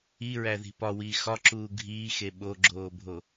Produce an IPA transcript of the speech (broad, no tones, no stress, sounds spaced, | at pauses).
i ɹ æ ð i̤ p ɒ w iː x ɒ ǁ uː ɡʱ iː x e ɓ o ɡ͡ǁ oː bʱ o